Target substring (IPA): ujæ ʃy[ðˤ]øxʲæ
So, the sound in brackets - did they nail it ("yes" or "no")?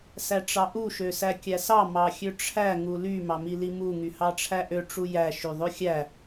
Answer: yes